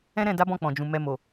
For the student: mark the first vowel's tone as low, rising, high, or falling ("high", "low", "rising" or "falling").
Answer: high